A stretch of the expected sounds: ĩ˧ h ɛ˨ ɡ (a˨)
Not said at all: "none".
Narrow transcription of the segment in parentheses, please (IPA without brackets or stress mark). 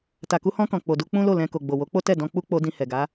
a˨˦